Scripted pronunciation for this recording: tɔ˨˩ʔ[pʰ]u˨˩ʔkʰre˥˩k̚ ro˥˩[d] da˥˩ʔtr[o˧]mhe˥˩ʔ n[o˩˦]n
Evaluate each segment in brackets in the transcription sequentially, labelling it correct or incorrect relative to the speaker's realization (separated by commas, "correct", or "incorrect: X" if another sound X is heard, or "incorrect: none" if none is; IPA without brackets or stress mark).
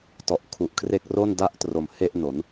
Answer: incorrect: kʰ, incorrect: n, incorrect: o˨˩, correct